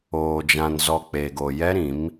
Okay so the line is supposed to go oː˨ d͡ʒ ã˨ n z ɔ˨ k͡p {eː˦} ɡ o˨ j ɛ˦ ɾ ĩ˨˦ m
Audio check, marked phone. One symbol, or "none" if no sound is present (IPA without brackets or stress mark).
eː˨